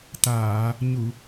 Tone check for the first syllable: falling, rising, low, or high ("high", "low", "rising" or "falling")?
low